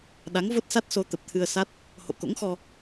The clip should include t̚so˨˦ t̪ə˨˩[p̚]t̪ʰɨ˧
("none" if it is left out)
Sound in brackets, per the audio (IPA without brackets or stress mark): p̚